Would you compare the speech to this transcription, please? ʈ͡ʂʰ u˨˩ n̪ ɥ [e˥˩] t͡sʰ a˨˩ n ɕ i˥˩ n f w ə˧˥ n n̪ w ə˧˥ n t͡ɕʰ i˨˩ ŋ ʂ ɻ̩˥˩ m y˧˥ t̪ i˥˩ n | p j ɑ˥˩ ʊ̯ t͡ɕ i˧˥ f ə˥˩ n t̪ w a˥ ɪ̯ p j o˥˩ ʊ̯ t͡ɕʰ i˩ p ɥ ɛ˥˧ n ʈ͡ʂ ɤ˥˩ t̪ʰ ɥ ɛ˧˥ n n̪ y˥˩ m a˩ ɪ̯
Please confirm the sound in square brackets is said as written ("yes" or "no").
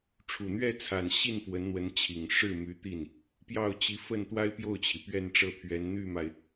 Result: no